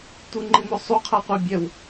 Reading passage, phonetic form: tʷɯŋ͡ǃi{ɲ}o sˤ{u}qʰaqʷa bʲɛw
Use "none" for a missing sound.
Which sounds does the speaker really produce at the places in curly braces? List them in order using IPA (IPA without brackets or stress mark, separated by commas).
m, u